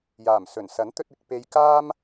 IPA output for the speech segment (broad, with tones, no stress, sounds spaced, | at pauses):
j aː˨˩ m s ɵ˨˩ n s ɐ˨˥ n t̪ ɵ˧ t̚ ɪ˨ k̚ p e˧ j k aː˥ m